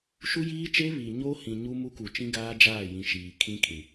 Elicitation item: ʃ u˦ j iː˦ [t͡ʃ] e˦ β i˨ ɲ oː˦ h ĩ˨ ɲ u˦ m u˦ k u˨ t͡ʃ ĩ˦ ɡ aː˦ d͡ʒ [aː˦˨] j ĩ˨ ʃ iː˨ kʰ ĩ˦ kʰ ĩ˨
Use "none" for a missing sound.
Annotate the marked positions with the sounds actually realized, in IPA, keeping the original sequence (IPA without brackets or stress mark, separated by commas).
t͡ʃ, aː˦˨